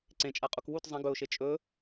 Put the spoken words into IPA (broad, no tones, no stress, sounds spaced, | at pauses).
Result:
ǀ ẽ t͡ʃʼ a qʼ u k w u t zˤ ɐ̃ ɡ ɵ ʊ̯ ʃ e t͡ʃʼ ɵ